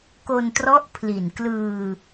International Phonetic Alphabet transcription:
k o˧ n t r ɔ˦˥ ʔ pʰ l i˨˩ n k l ɯː˧

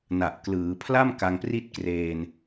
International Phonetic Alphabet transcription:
n a˨˩ ʔ k l ɯː˩˦ pʰ l a˥˩ m k a˧ ŋ p r i˥˩ t̚ k r eː˧ n

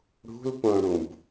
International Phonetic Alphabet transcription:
ɽ ṳ l p õ ɽ ũ b

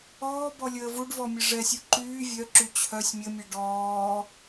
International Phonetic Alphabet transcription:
ɔː b ɔ lʲ əː v u ɖ v ɔ mʲ ə ʐ ɛ sʲ u ǃ yː vʲ œ ǁ y t͡ɕʰ œ sʲ mʲ ə mʲ ɛ ɖ ɔː

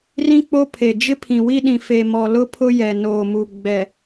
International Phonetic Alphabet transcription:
r ĩ˦ k͡p o˦ pʰ e˨ d͡ʒ ɪ˦ pʰ ĩ˨ w i˦ ɗ ĩ˨ f e˨ m ɔ˨ l ʊ˦ pʰ ʊ˦ j ɛ˨ n oː˨ m u˨ ɡ͡b ɛ˨

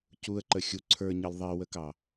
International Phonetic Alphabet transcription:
c u ə̯ ǃ ə xʲ u ǀʰ ə˞ ɲ ʌ l ðˤ i w ə k ɑ

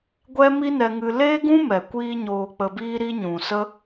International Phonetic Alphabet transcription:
ɡʷ ɛ˦ m i˦ n ɛ˧ ŋ ɨ˧ l eː˦ ɡ ũ˦ m ɛ˨ kʷ iː˦ ɲ oː˧ k͡p ə˧ b iː˦ ɾ i˦ ɲ ũ˨ s ə˦

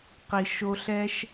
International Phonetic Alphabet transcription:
q i˨ ʃ o˧ ɬ ɛ˦ ʃ

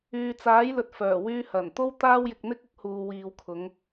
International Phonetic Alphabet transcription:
yː˨ t͡s aː˨˥ j l ɵ˨ t̚ f œː˨˩ w yː˧ h ɐ˨˩ n t̪ o˥ w t̪ aː˥ w j ɪ˧ k̚ n̪ ɪ˥ k̚ ʊ˨˥ k̚ h uː˨ w iː˨ w kʰ ʊ˨˧ ŋ

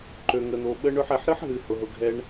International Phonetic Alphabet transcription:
ǃ ø˨ ŋ ə˨ n̪ o˨ ɓ ə˦ ɳ ø˧ ħ ɛ˨ ħ ɾ ɨ˦ ħ ɦ ɨ˨ h ʊ˨ ɦ ʊ˨ ɡʱ ɛ˦ ɳ

